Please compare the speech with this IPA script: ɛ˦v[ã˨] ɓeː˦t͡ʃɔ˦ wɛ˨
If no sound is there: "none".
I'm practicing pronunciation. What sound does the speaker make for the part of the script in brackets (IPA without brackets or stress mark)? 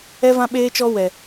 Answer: ã˦